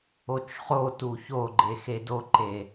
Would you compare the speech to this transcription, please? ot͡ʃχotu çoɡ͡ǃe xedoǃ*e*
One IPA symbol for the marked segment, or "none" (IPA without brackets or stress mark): e